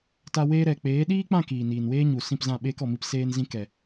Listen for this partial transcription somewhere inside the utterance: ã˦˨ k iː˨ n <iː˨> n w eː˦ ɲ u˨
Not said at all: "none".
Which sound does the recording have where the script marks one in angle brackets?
iː˨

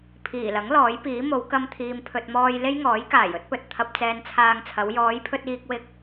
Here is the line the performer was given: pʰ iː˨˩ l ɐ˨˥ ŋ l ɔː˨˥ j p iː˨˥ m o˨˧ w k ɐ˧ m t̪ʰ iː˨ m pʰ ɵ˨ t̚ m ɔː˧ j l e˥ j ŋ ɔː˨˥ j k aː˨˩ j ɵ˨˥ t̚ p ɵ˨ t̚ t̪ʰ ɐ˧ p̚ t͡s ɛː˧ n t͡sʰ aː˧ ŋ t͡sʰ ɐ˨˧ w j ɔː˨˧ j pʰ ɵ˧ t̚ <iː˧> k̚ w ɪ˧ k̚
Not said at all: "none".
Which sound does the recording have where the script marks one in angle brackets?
iː˧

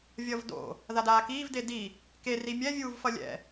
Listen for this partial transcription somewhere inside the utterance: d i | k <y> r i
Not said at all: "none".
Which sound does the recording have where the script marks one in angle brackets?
e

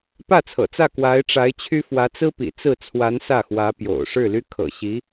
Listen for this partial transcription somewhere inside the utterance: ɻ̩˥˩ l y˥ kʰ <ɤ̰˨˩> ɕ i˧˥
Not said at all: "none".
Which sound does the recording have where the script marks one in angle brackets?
ɤ̰˨˩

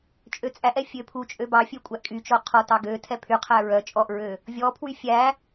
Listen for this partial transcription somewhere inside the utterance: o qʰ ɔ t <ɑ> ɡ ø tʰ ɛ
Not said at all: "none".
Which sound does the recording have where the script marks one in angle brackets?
ɑ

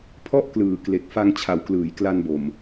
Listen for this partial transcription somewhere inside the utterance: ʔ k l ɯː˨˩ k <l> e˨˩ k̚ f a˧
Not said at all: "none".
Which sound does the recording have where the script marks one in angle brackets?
l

